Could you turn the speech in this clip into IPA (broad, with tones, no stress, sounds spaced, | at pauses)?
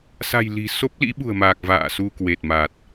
s a̤˨˩ j l i̤˨˩ s o˦˥ p̚ l ḭ˧˥ ɓ ṳ˨˩ ə̯ m aː˨˩ k̚ v a̰ː˧˨ s u˧ k w e˨˩ t̚ m a˨˩ t̚